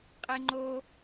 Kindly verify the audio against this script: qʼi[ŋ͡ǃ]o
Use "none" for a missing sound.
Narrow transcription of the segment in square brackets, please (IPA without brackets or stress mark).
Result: ŋ͡ǃ